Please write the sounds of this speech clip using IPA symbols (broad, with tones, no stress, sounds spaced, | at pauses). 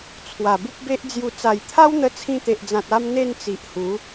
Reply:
t͡sʰ w a˨˩ b u˦ p̚ b e˦ ʔ d͡z j u˧ t͡s a˨˩ j t̪ʰ a˦ w n̪ ə˧ t͡sʰ ĩ˧ t̪ e˨ ʔ d͡z ã˨ t̚ a˦ m n̪ e˥˧ n t͡s i˨ ʔ h u˨˦